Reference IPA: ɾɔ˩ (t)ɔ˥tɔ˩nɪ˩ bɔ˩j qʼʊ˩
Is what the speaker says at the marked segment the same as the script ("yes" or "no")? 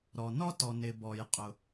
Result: no